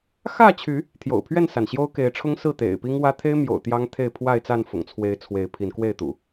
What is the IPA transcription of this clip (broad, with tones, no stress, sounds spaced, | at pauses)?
x ä˥˨ t͡ɕʰ y˨˦ | t̪ʰ j o̰˨˩ ʊ̯ pʰ ɥ ɛ˥˨ n s a˩ n ɕ j o˦ ʊ̯ k e˨˦ ɪ̯ ʈ͡ʂʰ ʊ˦ ŋ s ɹ̩˥˨ t̪ ḛ˨˩ ɪ̯ p i˦ ŋ w ä˦ t̪ʰ e˦ ɪ̯ m j o̰˨˩ ʊ̯ t̪ j ɑ˦ ŋ t̪ʰ e˥˨ ɪ̯ pʰ w a˥˨ ɪ̯ t͡s a˥˨ n f ʊ̰˨˩ ŋ t͡sʰ w e˨˦ ɪ̯ t͡sʰ w e˨˦ ɪ̯ pʰ i˨˦ n k w e˥˨ ɪ̯ t̪ ṵ˨˩